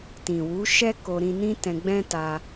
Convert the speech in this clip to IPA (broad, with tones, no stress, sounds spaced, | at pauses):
t ĩ˨ w u˨˦ ʃ ɛ˦ k o˧ ɾ ĩ˧ n ĩ˦ t ɛ̃˧ ɡ͡b ɛ̃˦ t a˧